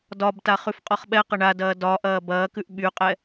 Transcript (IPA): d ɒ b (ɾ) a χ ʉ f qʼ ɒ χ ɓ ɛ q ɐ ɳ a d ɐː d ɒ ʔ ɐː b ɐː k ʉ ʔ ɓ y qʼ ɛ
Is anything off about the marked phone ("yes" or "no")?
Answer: yes